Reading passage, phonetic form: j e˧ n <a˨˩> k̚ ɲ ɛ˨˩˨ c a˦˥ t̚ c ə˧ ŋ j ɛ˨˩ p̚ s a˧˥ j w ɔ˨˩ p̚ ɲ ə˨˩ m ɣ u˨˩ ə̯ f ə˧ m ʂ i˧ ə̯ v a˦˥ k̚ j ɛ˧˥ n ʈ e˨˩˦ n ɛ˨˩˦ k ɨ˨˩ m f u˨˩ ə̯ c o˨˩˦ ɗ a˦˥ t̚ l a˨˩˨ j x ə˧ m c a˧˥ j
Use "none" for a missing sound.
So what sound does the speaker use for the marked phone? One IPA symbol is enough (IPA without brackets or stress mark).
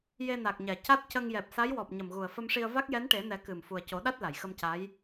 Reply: a˨˩